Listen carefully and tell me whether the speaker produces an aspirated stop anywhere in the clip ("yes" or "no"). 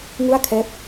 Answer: yes